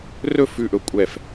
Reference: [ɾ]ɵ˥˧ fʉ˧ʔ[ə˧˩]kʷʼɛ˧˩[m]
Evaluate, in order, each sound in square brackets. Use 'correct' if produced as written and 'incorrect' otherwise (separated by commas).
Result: incorrect, incorrect, incorrect